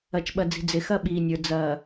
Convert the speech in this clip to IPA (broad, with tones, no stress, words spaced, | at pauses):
ɐ˨t͡ʃɓɐ˨d͡zi̤˨ d͡zɪ˨xɐ˦ɓiː˨nʲə˞˨ d͡zɐː˨